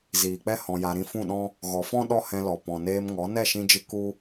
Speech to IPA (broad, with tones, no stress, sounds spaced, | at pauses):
z iː˨ k͡p ɛ˦ h ɔ̃˧ j a˧ ɾ ĩ˦ f ũ˦˨ ɗ ɔ̃˦ | ɣ ɔ˨ f ɔ̃˦ ɗ ɔ˦ h ɛ̃˧ l ɔ˨ p ɔ̃˨ n eː˧ m ŋ ɔ˨˦ n ɛ˦˨ ʃ ĩ˧ d͡ʒ ɨ˧ k u˦